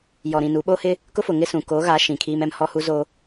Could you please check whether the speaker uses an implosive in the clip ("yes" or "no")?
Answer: yes